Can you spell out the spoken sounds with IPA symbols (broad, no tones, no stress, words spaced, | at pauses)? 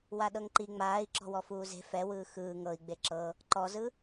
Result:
waɗɤŋǃi ŋ͡maːi̯ǁɔ̤ wɔfuːze̤ fɛwɯː xɯː ŋɤi̯ɡ͡be ǁɤ | ǃɔzɯ